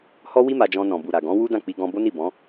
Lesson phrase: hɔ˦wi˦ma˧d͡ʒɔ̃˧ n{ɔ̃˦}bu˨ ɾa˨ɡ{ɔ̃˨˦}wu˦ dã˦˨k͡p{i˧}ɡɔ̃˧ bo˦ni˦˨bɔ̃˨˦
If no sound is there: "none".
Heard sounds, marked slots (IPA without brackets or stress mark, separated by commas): ɔ̃˨, ɔ̃˨˦, i˧